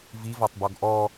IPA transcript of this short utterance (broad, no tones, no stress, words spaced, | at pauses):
vivɒtˤbɔɡ ʔɔ